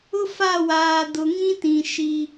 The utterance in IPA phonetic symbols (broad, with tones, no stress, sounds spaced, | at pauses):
ʊ˦ f a˦˨ w aː˨ d ʊ˨ ŋ ĩ˦ t ĩ˨ ʃ i˦